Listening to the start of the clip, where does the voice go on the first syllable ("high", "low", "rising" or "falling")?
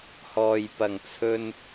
low